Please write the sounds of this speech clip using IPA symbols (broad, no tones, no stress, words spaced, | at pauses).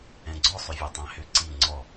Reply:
ɛ̃ɡ͡ǀɔ sˤʏvʲɛtˤæ̃hʏ ǀi ŋ͡ǀɔ